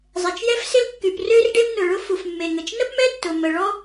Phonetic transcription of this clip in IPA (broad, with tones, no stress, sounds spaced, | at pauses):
zˤ ɛ˩ t͡ʃ j ɛ˥ f s ɪ˥ l kː y˩ p r ø˥ r ɖ e˥ m n ʊ˩ ɭ ʊ˥ f u˩ f mː e˩ ŋ ə˩ t͡ʃ n ə˥ p m ɛ˥ tː ʊ˩ m ə˩ ɭ ɔ˥